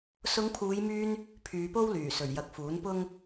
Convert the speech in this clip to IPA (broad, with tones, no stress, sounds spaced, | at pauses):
s ʊ˨˧ ŋ pʰ uː˨˧ j m yː˧ n | pʰ yː˨˧ p o˥ w l yː˨˩ s ɵ˨˩ ɥ j ɐ˨ k̚ f uː˨˥ n p ʊ˥ ŋ